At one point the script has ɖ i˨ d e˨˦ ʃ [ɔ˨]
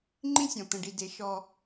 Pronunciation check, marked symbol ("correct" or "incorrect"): incorrect